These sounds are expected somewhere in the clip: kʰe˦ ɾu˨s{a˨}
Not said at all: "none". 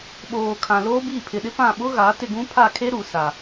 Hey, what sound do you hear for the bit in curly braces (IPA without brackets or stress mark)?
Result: a˨